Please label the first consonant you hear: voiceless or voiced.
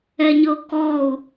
voiced